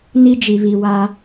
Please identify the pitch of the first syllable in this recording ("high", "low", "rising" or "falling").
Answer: high